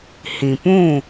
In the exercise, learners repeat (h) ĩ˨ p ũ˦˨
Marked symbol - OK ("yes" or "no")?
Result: yes